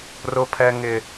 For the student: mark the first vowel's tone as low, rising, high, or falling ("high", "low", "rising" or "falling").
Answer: high